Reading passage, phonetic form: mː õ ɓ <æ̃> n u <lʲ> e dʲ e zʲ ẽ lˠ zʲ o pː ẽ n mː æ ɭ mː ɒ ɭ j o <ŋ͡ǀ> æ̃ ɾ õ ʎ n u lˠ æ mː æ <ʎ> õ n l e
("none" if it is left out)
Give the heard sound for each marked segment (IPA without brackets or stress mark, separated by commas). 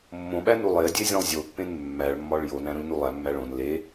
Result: æ, lˠ, n, ɭ